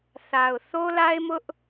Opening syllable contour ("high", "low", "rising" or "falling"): low